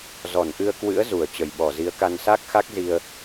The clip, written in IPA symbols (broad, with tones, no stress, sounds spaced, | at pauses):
z ɔ˧˩ n ʔ ɨ˧ ə̯ k w ɨ̰˧˥ ə̯ z u˧˩ ə̯ t͡ɕ ə˧˩ j ɓ ɔ˧˩ z i˨˦ ə̯ k a˧ n s a˦˥ k̚ x a˦˥ k̚ z i˧ ə̯